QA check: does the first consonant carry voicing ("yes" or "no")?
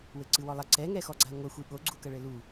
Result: yes